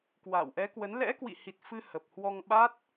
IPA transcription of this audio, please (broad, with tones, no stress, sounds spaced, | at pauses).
k w a̰ː˧˨ w ʔ ɛ˨˦ k w ə˨˦ n l ɛ̰˧˥ k w ḭ˧˨ h i˨˩ t̚ f ɨ˧ h ə˨˩ p̚ h w ɔ˧ ŋ ɓ a˦˥ t̚